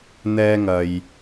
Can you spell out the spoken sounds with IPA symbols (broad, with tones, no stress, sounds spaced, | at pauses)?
n̪ ɛː˧ ŋ ɐ˨ j